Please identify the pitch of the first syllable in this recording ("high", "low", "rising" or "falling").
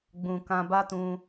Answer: low